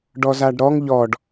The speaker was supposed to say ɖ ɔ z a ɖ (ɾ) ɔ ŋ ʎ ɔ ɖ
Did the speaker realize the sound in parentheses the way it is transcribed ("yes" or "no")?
yes